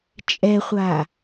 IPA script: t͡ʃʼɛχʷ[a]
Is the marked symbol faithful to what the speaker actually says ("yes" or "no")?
yes